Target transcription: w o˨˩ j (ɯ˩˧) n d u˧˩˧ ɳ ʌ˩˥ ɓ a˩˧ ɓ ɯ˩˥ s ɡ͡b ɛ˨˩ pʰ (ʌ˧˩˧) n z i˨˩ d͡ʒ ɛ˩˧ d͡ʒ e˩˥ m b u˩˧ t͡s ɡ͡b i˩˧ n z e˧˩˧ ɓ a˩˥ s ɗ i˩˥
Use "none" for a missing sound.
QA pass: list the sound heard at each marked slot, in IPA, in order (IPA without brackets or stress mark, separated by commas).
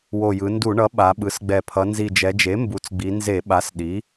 ɯ˩˧, ʌ˩˧